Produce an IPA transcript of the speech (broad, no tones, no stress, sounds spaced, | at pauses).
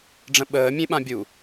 ɖ͡ʐ ə̃ ɓ əː mʲ ẽ ɓ ã bʲ u